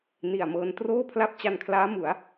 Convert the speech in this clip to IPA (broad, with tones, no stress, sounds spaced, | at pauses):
n i˨˩ a̯ m ɤː˧ n t r oː˥˩ pʰ l a˥˩ p̚ t͡ɕ a˧ n kʰ l aː˦˥ m u˩˦ a̯